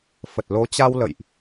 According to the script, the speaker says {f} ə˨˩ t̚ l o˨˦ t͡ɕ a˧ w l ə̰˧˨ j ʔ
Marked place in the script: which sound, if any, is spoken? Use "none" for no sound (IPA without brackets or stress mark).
f